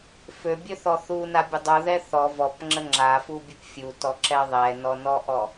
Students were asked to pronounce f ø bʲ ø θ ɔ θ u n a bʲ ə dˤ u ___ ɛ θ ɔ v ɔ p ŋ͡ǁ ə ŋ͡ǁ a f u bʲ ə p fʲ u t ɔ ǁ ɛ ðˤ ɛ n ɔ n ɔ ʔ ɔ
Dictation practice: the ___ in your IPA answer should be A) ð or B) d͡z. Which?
A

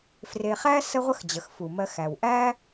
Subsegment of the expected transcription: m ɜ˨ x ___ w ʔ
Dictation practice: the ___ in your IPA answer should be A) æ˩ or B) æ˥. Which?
A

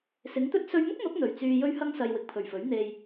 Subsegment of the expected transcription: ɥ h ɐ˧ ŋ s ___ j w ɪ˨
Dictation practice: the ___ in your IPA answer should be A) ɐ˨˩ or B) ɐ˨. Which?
B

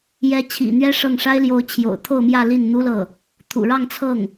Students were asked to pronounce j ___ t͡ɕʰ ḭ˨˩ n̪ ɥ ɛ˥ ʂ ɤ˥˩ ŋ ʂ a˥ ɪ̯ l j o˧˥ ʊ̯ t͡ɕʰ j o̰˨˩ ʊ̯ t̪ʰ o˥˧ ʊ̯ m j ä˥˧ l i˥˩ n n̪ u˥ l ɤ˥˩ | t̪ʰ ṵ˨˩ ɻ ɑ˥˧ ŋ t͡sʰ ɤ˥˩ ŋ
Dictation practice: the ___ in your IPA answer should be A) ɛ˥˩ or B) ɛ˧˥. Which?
B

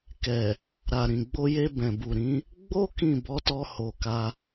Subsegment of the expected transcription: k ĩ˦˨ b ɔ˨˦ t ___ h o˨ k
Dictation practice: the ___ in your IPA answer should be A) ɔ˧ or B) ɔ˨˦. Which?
A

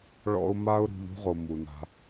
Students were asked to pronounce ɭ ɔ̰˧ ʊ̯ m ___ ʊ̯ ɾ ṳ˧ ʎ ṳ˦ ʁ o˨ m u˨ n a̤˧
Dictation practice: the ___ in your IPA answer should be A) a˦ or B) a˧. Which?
A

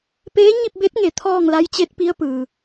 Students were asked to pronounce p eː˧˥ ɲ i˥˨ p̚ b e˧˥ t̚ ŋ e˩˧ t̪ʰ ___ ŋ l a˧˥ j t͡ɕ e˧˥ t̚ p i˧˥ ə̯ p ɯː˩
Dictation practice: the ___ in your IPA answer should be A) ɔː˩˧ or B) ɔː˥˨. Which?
B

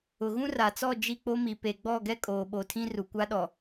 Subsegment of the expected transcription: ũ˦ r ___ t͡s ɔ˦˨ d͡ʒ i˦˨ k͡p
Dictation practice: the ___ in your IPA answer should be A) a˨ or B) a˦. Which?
A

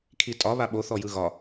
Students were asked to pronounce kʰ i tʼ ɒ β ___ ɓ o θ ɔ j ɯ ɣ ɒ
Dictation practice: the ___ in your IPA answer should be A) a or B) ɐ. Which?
A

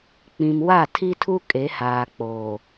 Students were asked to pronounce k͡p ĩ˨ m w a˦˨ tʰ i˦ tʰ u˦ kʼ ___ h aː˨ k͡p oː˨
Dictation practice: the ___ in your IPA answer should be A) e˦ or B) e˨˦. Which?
B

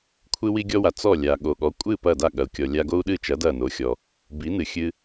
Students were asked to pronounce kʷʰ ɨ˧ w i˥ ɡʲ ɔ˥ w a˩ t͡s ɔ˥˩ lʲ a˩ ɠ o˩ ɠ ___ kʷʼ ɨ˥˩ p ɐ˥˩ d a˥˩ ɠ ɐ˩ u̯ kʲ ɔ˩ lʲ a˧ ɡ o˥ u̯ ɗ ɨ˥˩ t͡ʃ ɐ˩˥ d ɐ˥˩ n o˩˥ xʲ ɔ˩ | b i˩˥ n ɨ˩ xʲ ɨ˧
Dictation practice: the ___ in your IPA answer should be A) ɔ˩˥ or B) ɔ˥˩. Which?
A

